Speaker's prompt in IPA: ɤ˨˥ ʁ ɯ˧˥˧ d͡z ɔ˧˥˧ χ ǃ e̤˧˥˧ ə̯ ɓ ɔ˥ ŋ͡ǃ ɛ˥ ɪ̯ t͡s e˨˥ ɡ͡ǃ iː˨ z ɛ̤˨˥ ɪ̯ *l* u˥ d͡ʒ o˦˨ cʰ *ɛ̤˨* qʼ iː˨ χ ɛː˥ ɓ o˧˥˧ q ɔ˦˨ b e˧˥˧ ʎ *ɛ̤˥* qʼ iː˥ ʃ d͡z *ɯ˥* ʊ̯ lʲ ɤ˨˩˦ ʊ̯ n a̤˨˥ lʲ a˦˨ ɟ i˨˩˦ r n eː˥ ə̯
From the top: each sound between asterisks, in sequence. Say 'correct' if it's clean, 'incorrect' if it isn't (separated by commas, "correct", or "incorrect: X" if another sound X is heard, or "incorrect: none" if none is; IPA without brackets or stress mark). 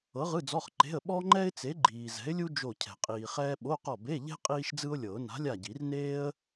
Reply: incorrect: lʲ, correct, correct, correct